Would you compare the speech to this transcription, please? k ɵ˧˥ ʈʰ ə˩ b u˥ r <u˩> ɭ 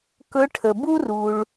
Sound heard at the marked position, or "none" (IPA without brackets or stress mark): u˩